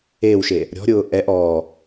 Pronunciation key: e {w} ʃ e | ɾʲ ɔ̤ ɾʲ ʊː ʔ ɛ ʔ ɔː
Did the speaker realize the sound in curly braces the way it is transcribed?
yes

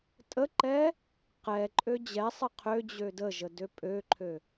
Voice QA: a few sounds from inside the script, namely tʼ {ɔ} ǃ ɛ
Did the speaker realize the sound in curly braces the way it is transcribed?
no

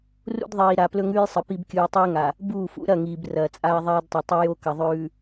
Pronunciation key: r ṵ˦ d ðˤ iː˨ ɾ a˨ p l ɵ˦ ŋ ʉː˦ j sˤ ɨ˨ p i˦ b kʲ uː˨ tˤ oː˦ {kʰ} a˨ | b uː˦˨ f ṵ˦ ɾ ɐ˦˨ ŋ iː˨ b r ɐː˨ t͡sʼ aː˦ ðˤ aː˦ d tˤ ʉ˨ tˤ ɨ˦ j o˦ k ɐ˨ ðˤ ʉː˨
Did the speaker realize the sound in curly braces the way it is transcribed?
no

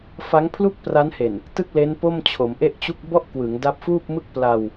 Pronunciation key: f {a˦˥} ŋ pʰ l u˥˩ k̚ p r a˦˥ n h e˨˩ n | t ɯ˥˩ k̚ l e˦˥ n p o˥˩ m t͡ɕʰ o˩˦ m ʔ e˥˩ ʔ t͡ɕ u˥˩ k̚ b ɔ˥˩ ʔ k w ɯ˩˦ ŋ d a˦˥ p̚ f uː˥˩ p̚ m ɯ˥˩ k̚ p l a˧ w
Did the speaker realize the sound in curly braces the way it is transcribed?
yes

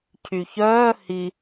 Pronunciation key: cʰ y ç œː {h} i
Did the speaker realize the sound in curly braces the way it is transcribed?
yes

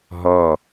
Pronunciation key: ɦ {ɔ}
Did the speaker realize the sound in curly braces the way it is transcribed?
yes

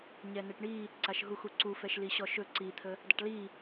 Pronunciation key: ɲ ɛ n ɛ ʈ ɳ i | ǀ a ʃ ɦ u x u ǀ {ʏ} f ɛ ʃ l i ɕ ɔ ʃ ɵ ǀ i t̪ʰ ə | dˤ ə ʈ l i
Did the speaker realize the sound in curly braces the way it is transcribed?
no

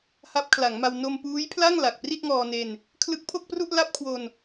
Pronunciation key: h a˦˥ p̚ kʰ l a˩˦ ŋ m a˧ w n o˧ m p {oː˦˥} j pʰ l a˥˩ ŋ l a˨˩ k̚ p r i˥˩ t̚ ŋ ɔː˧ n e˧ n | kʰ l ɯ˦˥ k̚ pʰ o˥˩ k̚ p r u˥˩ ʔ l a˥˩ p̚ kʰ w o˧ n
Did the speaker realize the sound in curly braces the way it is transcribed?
no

